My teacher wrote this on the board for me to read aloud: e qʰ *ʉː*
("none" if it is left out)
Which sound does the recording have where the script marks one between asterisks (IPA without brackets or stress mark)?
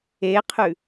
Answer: ʉ